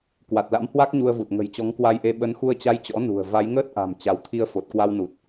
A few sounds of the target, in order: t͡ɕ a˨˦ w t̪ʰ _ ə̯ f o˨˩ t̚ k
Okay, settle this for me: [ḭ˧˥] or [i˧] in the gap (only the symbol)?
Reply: i˧